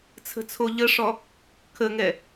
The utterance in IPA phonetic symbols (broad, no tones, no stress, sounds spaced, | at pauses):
t͡sʰ ə̤ t͡sʰ o ʎ ə ʂ ɔ | kʰ ə ŋ ɛ